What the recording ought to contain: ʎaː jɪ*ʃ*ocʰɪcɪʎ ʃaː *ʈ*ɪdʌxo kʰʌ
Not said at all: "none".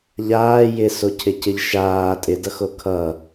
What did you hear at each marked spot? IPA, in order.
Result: s, tʼ

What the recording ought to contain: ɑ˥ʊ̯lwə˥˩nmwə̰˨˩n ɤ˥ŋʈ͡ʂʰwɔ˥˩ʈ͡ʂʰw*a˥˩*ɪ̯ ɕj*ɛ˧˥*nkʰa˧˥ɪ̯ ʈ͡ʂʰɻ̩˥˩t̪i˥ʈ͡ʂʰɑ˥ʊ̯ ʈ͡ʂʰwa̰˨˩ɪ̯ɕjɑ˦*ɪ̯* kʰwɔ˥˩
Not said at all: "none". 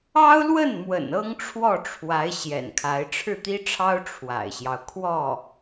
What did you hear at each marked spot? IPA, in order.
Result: a˧˥, ɛ̰˨˩, ʊ̯

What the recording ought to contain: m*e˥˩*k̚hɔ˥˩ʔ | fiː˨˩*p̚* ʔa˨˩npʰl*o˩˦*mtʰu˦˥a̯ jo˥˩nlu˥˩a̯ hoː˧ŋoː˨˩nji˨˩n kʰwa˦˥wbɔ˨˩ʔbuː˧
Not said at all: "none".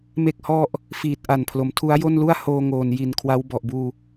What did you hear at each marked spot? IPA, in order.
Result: e˥˩, t̚, o˩˦

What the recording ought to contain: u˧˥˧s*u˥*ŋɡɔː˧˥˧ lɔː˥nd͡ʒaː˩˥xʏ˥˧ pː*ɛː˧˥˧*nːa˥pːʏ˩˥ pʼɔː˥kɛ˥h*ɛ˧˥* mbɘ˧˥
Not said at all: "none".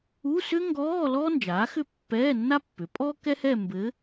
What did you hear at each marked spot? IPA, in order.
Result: ʏ˥, ɛː˧˥˧, ɛ˥˧

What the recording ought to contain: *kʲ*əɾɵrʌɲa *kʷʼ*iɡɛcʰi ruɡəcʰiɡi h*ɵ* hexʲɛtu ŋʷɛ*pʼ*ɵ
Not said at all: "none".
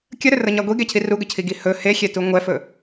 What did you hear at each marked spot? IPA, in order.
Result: kʲ, ɡʷ, ɵ, f

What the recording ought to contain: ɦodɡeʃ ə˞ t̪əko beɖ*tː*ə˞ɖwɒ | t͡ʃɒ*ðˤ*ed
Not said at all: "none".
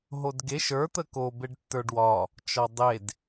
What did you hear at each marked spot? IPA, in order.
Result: tː, dˤ

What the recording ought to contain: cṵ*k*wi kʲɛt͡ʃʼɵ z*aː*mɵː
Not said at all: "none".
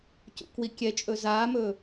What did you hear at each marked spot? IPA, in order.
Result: k, aː

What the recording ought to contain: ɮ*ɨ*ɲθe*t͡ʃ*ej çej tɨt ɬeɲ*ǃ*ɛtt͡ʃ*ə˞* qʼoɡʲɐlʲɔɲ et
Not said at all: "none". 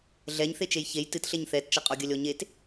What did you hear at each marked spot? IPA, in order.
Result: ɛ, t͡ʃ, θ, ɐ

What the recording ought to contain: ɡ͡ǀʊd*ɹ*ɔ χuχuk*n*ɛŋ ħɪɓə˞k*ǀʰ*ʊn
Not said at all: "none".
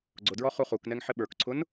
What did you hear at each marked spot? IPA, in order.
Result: ɹ, n, ǀʰ

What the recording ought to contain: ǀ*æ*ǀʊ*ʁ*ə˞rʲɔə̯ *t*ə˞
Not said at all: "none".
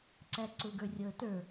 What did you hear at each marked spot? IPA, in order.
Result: æ, ɡ, t

